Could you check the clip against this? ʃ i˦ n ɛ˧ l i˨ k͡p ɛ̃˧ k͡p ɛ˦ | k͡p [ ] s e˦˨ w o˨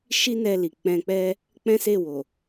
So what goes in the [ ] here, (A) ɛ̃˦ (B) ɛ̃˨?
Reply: A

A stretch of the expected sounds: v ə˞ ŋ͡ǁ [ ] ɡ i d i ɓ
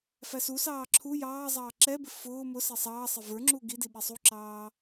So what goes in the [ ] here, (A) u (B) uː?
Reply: A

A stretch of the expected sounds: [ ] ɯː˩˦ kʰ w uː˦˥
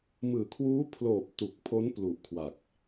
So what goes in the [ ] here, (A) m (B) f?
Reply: A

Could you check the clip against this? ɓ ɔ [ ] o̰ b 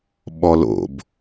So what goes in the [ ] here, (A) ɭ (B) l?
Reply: B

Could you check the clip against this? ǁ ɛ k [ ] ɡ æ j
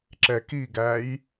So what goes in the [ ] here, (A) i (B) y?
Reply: A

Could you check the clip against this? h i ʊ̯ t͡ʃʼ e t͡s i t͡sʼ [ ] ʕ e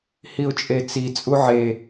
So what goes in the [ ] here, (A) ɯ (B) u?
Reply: B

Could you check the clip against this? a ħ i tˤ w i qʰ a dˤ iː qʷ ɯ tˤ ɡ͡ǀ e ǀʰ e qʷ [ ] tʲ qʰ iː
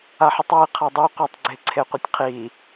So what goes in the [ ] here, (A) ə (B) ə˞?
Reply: A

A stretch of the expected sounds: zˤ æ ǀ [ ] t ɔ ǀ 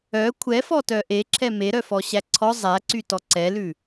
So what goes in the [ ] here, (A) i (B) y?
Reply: B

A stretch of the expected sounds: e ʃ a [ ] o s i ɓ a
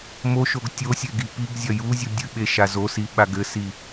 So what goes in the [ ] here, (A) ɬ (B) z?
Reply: B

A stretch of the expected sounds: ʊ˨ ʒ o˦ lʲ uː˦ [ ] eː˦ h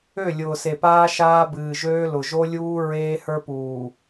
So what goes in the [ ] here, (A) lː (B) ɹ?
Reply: B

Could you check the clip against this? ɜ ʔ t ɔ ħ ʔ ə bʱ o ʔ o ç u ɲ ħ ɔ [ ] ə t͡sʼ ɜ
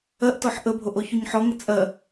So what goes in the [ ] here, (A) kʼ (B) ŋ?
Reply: B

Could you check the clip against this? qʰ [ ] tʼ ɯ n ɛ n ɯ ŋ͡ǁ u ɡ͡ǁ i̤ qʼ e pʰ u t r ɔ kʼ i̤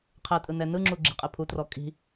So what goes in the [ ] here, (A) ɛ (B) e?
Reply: A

